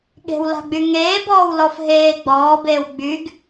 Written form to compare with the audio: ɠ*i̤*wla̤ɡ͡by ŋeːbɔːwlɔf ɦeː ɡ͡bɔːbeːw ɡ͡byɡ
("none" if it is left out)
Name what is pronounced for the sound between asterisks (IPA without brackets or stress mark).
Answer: e̤